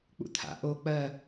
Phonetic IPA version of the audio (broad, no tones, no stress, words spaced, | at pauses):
k͡pṵt̪ʰa̰ ʔo k͡pɜ